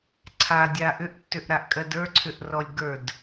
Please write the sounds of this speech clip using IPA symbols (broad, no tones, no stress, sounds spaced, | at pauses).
ǀʰ a dʲ a ʔ ʏ ʔ tː ʏ ʔ ɾ a ʔ kʼ ɜ d ə˞ ǀʰ ʏ ʔ r ɔ lʲ ɡ ə˞ d